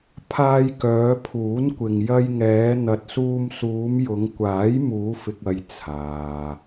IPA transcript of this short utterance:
pʰ aː˧ j k œː˨˧ pʰ uː˨˥ n kʷ ɪ˨ ŋ j ɐ˧ j ŋ ɛː˨˧ n̪ ɐ˨ t̚ s uː˧ m s uː˨˧ m j ʊ˨˧ ŋ kʷ aː˨˥ j m uː˨˧ f ɪ˨ k̚ ɐ˨ j t͡sʰ aː˨

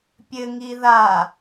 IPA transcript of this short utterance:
pʲ ɘ ŋ i ð a

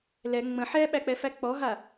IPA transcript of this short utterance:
l ɛ ŋ͡m ə̃ ħ ɛ ɓ æ k͡p ɛ f æ k͡p ɔ ɦ a

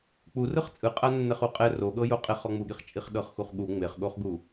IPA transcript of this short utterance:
k͡p u r ɯ χ t͡sʼ ɯ qʼ a nː ɛ χ u qʼ ɛ r o ɠ ɤ j o qʼ e χ ɔ ŋ͡m u ɠ i χ t͡ʃʼ i χ ɗ ɤ χ x u χ ɠ u ŋ͡m e χ ɠ o χ ɡ u

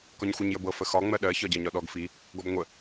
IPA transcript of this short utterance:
k ɒ ɲ xʷ ɜ ɲ j ə b ɤ f ə x ɒ ŋ͡m ɜ ɗ ɜ ç ɒ ɟ ɜ ɲ ɒ ɗ ɔ ɡ f i | ɡ ɔ b ŋʷ ə

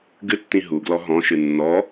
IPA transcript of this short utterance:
ɡ ɨ tː ĩ ɦ u ɡ l ɔ ɦ ɔ̃ ʃ ɨ nː ɔ

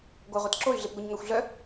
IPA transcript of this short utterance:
ɡʷ a ʁʷ e t ǁ o y̯ ɮ e p ɡʷ œ ɲ ŋ a xʷ ɮ œ

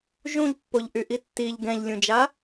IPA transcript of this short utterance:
ʒ ũ ʎ pː o ʎ ʔ y ʔ i tː i ʎ ɡ ɛ̃ ʎ lʲ ũ d͡ʒ a

